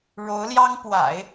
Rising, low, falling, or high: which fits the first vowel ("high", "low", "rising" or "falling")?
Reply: rising